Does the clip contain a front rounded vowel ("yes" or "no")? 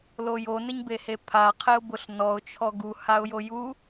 no